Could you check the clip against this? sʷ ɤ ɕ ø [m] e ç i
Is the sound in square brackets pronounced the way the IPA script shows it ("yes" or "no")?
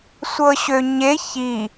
no